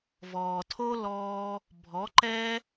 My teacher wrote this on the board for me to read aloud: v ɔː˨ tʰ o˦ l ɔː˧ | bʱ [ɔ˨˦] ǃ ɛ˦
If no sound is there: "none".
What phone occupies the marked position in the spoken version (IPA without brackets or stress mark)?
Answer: ɔ˨˦